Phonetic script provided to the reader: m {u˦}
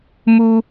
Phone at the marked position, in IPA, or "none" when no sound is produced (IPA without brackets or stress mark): u˦